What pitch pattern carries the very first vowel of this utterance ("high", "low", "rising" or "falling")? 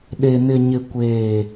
low